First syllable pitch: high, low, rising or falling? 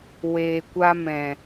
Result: low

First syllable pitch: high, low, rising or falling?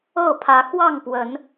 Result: falling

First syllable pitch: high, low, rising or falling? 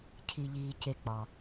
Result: low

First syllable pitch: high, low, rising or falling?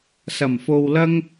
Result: low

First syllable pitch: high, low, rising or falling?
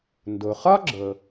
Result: low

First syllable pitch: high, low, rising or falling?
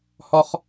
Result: low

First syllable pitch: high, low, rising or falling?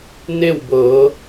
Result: falling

